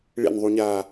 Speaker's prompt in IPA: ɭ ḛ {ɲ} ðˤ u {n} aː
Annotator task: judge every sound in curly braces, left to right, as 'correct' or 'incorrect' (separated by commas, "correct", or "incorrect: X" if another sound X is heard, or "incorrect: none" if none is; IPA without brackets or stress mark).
incorrect: n, incorrect: ɲ